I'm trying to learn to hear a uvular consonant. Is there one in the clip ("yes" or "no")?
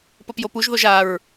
no